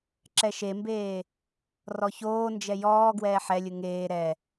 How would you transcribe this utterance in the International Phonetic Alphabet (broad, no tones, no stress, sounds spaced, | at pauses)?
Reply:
ǁ ɛ ʃ e m b eː | r ɔ ç oː n d͡ʒ ɛ j ɔː ɡ w ɛː ħ ɛ lʲ ɯ ŋ eː ɾ ɛ